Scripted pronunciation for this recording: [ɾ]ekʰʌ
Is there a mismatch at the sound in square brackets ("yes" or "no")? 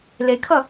yes